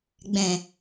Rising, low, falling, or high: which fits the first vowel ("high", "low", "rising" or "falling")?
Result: low